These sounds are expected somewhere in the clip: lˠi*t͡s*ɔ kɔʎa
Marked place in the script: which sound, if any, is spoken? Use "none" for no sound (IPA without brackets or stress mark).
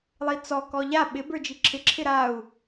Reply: t͡s